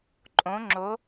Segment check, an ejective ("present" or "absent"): present